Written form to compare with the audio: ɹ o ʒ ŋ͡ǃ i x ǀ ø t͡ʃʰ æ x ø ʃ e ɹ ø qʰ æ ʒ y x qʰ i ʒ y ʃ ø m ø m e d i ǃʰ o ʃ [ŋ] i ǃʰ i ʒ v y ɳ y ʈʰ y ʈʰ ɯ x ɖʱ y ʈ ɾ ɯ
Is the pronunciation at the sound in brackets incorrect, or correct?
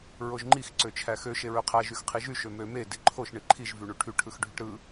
incorrect